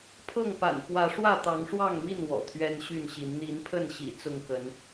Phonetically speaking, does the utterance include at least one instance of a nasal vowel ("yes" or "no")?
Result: no